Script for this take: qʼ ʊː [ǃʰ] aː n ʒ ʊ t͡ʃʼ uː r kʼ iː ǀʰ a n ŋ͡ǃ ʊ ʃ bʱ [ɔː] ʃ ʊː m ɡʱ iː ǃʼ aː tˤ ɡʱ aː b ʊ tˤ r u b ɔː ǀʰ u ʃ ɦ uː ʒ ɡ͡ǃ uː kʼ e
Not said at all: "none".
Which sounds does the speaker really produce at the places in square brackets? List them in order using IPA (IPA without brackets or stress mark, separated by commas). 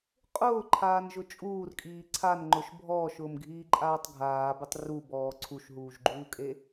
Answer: ǃʰ, ɔː